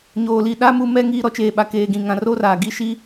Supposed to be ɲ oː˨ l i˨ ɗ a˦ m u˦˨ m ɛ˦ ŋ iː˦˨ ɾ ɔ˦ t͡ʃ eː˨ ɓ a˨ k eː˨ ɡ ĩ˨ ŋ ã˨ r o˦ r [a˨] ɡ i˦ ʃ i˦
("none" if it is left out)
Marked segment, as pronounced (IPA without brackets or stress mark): a˨